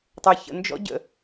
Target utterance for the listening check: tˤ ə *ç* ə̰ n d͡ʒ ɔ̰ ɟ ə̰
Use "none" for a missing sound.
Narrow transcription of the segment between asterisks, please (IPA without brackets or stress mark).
ç